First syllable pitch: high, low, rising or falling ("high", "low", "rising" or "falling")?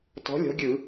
rising